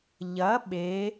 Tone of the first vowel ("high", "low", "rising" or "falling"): rising